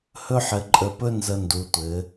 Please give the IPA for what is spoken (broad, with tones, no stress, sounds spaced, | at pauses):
h ɵ˥ ħ ɘ˧ ǃʼ ə˧ p ɵ˥ n z ə˧ n d u˩˧ tʷ ɘ˩˧